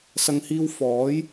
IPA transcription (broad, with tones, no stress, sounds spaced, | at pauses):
s ɐ˨ ŋ h iː˧ w f ɔː˨˥ j